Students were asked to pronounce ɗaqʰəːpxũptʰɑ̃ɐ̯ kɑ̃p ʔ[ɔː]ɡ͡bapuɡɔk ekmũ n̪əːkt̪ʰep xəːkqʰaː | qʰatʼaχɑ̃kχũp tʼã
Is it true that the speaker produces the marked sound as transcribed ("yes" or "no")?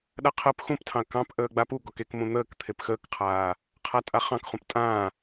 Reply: no